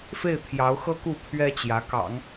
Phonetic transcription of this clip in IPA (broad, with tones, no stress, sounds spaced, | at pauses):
f e˥˩ ɪ̯ t̪ʰ j ɑ˧˥ ʊ̯ x ɤ˥ k u˥˩ pʰ ɥ ɛ˥ t͡ɕ j ä˧˥ k ɑ̰˨˩˦ ŋ